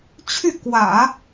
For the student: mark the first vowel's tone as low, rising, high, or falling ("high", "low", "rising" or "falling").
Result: falling